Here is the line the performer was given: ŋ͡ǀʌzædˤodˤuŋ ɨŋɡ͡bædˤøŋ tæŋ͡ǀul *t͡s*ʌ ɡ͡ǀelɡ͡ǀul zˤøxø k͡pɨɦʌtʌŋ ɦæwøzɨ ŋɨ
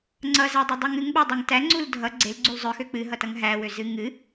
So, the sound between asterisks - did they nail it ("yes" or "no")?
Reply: no